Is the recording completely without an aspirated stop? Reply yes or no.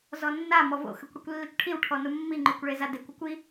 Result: no